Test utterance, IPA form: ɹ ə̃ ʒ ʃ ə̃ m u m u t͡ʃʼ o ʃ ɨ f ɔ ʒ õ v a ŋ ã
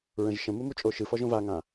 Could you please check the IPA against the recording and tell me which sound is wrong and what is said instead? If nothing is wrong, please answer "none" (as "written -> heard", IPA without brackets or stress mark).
none